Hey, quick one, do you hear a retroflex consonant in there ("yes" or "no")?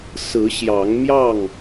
no